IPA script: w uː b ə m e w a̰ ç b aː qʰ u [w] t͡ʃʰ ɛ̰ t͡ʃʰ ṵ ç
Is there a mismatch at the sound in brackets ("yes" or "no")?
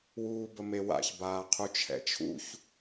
yes